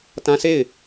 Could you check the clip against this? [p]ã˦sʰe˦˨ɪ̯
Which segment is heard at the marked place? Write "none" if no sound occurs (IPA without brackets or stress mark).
t